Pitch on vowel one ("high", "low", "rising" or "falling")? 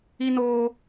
high